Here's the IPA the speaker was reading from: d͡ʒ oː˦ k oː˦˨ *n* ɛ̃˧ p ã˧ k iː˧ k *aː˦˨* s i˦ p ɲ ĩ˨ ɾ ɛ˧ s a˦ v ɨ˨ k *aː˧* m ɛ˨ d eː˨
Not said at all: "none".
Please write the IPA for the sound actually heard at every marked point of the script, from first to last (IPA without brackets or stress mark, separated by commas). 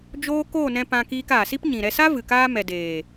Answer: n, aː˨, aː˧